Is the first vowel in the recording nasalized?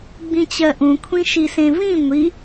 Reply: yes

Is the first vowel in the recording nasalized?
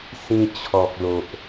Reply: yes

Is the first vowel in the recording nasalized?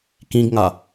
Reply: yes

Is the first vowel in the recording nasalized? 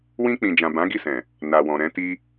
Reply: yes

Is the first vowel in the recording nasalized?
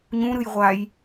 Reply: yes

